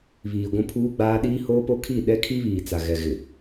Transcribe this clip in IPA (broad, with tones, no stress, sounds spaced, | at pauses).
β iː˨ ɡʷ ũ˦ pʰ uː˦ ɡ͡b aː˦ ɗ iː˦ h oː˦ p o˦ kʰ i˦˨ ɗ ɛ˦ kʰ i˦ β iː˨ t͡s a˨ ɣ ɛ˨ ɣ ɪ˨